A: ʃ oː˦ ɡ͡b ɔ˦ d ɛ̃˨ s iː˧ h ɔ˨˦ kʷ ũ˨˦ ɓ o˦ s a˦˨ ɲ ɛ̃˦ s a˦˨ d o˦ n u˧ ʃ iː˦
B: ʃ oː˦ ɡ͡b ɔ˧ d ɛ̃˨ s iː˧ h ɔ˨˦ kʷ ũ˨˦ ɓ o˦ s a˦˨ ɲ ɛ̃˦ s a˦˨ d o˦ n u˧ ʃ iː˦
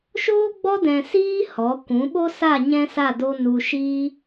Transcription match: B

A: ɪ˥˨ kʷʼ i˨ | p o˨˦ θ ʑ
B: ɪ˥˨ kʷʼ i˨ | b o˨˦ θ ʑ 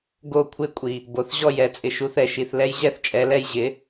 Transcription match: B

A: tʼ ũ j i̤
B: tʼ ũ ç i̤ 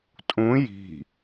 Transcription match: A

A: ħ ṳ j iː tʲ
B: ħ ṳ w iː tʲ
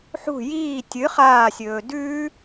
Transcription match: A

